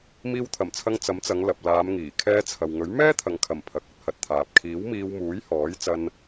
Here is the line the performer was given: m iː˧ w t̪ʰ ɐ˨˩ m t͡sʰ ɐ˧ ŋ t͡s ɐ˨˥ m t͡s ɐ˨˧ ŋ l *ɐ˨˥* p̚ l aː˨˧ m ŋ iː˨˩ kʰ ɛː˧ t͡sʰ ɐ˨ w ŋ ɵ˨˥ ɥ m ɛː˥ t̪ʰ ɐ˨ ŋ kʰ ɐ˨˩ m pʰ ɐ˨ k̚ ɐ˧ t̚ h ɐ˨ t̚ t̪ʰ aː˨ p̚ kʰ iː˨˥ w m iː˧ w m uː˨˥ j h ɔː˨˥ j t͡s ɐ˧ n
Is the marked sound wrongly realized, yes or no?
yes